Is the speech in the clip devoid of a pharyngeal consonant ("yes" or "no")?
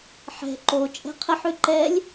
no